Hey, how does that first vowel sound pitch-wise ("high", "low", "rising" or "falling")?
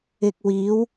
low